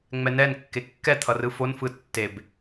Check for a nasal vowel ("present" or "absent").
absent